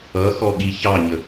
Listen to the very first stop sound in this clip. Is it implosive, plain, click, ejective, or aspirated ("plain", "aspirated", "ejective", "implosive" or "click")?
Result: implosive